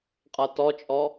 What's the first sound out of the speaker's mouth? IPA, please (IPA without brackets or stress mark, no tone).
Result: qʼ